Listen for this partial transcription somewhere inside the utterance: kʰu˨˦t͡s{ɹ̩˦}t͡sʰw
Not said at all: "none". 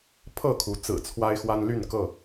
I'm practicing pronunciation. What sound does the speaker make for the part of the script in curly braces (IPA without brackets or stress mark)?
ɹ̩˨˩